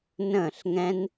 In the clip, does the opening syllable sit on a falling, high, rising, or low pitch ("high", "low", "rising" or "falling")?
falling